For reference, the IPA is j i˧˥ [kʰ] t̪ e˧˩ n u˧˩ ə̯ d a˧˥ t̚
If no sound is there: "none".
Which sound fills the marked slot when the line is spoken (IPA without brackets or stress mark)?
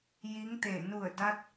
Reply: ŋ